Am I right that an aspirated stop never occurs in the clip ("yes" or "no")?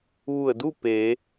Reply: yes